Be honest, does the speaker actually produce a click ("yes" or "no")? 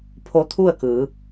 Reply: no